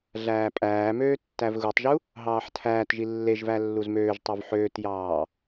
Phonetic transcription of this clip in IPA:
ɮæːpʼæːmøː tːævɣutˤʒu | ɦɑːħtʰæːtʒi lːeʒvæ lːuzmøːʒtˤov ħøːtjɑː

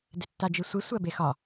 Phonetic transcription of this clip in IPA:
detːad͡ʒisʷi sʷɜbexɒ

